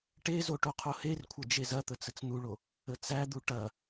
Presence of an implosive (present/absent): absent